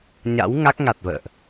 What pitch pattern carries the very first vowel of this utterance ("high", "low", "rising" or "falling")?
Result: rising